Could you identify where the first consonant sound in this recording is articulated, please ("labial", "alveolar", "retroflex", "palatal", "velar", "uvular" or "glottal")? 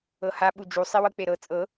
glottal